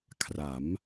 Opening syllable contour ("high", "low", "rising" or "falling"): rising